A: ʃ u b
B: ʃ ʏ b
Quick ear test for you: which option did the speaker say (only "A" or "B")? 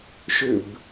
B